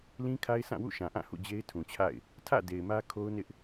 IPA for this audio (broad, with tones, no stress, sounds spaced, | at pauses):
l ĩ˦ kʰ a˦ ɪ̯ sʰ ã˦˨ w ṵ˦˨ ʃ ã˨ ʔ ã˦˨ h ṵ˦˨ d͡ʑ e˦ ɪ̯ tʰ ũ˨ t͡ɕʰ a̰˦˨ ɪ̯ | tʰ ä̰˦˨ d e˨ ɪ̯ m ä˦ kʰ o˦ ʊ̯ n ɪ˦ ʔ